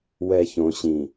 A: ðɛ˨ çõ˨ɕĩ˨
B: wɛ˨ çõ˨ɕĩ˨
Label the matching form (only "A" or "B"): B